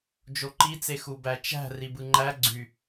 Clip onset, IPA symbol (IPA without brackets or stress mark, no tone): d͡ʒ